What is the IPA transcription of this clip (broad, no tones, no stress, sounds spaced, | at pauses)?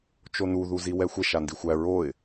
t͡ʃ o n u ð u z i w ɛ xʷ ɛ ʃ a n d i xʷ æ ɹ o ɪ̯